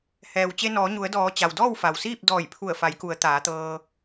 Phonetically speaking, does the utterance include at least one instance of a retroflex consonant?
no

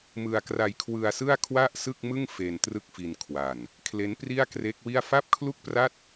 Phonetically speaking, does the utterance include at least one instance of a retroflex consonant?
no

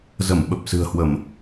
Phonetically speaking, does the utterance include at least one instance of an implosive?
yes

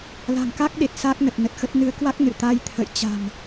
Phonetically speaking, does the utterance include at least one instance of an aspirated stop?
yes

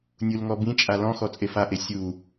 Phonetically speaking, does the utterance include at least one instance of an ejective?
yes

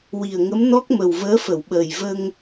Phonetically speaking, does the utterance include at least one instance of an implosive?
yes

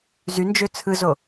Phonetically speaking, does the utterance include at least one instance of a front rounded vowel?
yes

